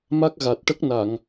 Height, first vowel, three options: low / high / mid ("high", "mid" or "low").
low